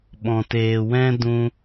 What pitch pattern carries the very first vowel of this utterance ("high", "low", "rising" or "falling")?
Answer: low